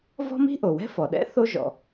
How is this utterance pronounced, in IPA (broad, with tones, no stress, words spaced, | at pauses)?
vɔ̤˥mi̤˥ʔo˩wɛ̤˥ fɔ˩ɗɛ̰˥θo˥ʒɔ̰˨